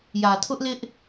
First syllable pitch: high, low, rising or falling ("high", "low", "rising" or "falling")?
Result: low